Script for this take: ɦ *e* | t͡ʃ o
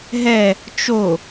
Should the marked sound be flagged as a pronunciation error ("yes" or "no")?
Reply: yes